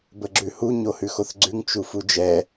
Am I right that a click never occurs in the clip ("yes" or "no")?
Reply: no